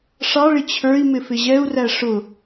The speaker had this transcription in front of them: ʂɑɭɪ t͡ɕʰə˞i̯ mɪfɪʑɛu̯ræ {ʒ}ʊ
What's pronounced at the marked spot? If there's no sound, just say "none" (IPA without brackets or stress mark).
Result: ʂ